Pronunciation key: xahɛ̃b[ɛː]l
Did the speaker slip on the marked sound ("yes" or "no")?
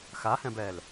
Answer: no